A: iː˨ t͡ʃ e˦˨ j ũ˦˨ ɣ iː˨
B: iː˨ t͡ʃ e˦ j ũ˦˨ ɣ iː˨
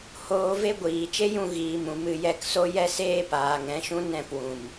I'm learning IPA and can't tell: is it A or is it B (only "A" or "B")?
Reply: B